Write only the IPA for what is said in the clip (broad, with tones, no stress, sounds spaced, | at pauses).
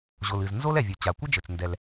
ʑ o˩ l ɨ˩ z n z o˥ l ɛ˩ vʲ o˩ t͡ɕ a˩ kʷ ɐ˥ d͡ʒ ɘ˩ t͡s n d ɛ˩ l